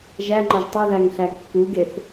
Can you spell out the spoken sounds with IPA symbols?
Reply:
ʒæŋ͡ǃɒʒ tˤoðæŋɬæ kːuɡeθ

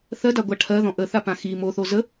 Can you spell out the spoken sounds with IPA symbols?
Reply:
θɜdaɡʷa ʈʰɜðɔ̃ ʔəθapã xi moθo zə

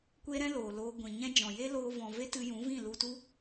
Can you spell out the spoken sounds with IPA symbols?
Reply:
kʷe˦ɾɛ̃˦ loː˨loː˧ɡʷĩ˨ ɲɛ̃˦d͡ʒɔ̃˨ je˦ loː˧vɔ̃˨ve˦ tɨ˧jũ˨˦vĩ˦˨ lu˧tu˦

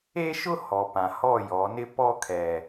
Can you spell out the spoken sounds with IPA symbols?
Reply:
e˦ʃʊ˦ hɔ˨pã˨ hɔ˦˨jɔ˨˦nɪ˦ pɔ˦kʰɛ˨

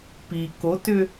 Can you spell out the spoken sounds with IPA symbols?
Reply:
pi kotʏ

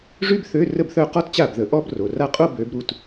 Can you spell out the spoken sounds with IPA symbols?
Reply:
ʐy˥bθø˧˥˧ rə˥˩bθœ˥˧qɔ˥t t͡ɕa˥˩bðə˨˦ʔɔ˥b ro˩˧˩ra˥˩qʼo˥˧ bø˨˦b ɾu˩˧˩t

